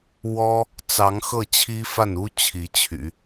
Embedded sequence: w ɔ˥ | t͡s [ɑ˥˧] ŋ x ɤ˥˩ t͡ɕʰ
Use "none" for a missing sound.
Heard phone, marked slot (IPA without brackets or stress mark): ɑ˧˥